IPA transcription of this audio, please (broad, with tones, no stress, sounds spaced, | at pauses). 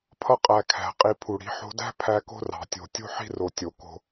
pʰ ʌ˧ qʼ æ˨ kʰ æ̤˨ qʼ i˧ pʰ u˨ ɽ i̤˨˦ ħ o̤˧ d æ̤˦ pʰ æ˧ k o̤˦ r ɑ̤˨ tʲ o̤˨ tʲ o̤˦ ħ i̤˦ r o˨ tʲ o˨ k o̤˧